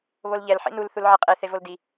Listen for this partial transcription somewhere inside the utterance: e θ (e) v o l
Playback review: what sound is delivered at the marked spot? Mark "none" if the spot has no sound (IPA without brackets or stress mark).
e